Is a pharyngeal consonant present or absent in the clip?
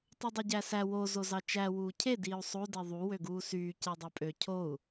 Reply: absent